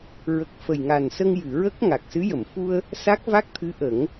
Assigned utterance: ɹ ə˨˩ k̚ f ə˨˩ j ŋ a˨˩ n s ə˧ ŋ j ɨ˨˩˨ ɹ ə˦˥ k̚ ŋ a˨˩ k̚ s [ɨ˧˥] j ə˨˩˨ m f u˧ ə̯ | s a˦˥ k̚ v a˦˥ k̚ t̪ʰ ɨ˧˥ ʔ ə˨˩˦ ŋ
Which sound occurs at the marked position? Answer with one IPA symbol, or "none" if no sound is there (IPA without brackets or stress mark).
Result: ɨ˧˥